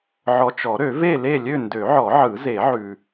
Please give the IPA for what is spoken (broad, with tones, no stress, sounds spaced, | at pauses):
ʕ ɔ˨ t͡ʃ ɔ˨˩˦ ɾ ø˨˩˦ v e˥˨ l e˥˨ lʲ ø˥˨ n d ø˨˩˦ ʕ ɔ˨˩˦ ʕ ɯ˨˩˦ z e˨˩˦ ʕ ʉ˨